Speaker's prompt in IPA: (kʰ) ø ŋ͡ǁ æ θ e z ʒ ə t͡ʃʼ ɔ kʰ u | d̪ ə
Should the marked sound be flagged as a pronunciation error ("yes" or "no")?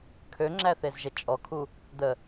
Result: no